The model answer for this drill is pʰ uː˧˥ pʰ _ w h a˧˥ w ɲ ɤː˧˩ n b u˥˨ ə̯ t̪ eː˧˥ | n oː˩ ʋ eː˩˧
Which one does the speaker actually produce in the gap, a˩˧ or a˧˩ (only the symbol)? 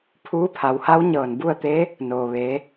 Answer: a˩˧